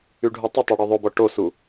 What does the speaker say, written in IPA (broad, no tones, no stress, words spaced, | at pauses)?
yɖʱutˤətˤe ɽyðˤobɔ ʈosu